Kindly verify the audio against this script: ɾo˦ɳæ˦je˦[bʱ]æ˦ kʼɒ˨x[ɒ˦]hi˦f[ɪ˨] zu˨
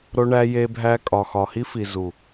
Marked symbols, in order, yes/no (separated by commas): yes, no, no